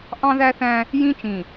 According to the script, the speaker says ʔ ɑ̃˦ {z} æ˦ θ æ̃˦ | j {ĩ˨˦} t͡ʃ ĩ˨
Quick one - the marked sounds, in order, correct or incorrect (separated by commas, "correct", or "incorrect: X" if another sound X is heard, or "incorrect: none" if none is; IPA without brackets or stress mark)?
incorrect: ð, incorrect: ĩ˦